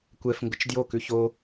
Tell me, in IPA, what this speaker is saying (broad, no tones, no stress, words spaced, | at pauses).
kʷɛf ŋɡʊt͡ʃdjo kʉço